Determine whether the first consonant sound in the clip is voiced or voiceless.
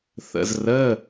voiceless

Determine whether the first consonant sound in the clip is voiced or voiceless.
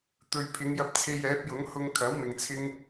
voiceless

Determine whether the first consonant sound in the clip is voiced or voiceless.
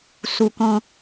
voiceless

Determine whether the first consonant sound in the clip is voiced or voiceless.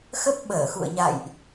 voiceless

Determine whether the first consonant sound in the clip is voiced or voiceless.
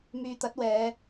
voiced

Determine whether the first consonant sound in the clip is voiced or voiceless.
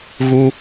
voiced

